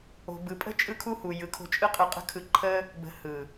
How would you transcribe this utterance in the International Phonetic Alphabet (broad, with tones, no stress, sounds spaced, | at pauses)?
o̤˨ b ɯ˨ pʼ ə̤˦ t͡ʃʼ ɯ˦ kʰ u˦ h u˨ j ɯ˨ kʰ o̤˧ t͡ʃʼ ɯ˦ qʼ ɯ˧ qʼ ə̤˦ kʰ ɯ˧ ǃʰ ə˦ | b ə̤˧ h ɯ˨